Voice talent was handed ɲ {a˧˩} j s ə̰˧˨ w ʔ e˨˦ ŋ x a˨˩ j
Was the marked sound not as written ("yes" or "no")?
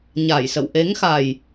no